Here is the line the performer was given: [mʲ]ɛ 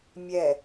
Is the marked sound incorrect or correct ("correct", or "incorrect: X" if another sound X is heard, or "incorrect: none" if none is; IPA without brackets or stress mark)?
correct